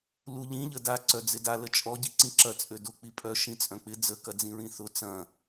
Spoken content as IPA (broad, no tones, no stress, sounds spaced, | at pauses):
l u ʎ ĩ ʎ ə d a ǀ œ d͡z ɪ d a l ə t͡ʃʼ ɔ ɟ i ǀ ĩ ǁ ɐ t͡sʼ ø d ʊ k͡p i pʼ œ ʃ ĩ t͡sʼ œ̃ k͡p ɪ d͡z ə k ɐ d͡z ĩ ɹ ĩ θ ʊ t͡s ɐ̃